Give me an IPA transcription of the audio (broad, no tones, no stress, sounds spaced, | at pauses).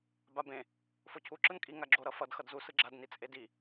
b a b ẽ | f o cʰ u ǁ ɯ n kʼ i ŋ a ɡ͡ǁ o ɾ ʌ f ʌ d x ʌ d z u s ɯ ɡ͡ǁ a d n i t͡sʼ e d i